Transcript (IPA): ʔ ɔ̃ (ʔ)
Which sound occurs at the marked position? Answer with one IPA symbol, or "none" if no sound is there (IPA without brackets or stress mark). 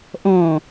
none